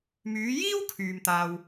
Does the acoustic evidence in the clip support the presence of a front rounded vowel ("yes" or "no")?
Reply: yes